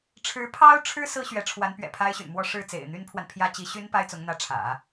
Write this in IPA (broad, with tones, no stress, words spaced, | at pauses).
ʈ͡ʂʰɻ̩˧˥pʰɑ˥ʊ̯ʈ͡ʂʰɻ̩˥ sɹ̩˥ɕɥɛ˧˥ʈ͡ʂʰwa˧˥n pɥɛ̰˨˩pʰa˥ɪ̯ɕy̰˨˩nmwɔ˥˧ ʂɻ̩˥˩ t͡sḛ˨˩ɪ̯n̪y˥npʰwa˨n pʰjä˥ t͡ɕi˧˥ɕy˥n pa˥ɪ̯t͡sʊ˧˥ŋn̪ä˧˥ʈ͡ʂʰä̰˨˩˦